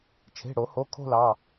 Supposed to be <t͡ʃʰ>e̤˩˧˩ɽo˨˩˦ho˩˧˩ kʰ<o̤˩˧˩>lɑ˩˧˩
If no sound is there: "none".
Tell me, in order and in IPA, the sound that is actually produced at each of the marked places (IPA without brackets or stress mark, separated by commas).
t͡ʃʰ, o̤˥˧